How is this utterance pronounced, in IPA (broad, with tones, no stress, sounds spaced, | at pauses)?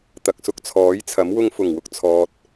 t̪ ɐ˨ k̚ s ʊ˧ k̚ t͡sʰ ɔː˨˥ j t͡sʰ ɐ˨˥ m w ʊ˧ ŋ f ʊ˨˩ ŋ w ʊ˧ k̚ t͡sʰ ɔː˨ t̚